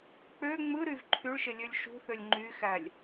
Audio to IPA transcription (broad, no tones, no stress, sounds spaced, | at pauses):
k͡p ø ŋ͡m ɯ ɾ y v ǃʰ y ɭ ʃ e lʲ ø lʲ ʃ ṳ θ ø lʲ ŋ͡ǃ y x æ lʲ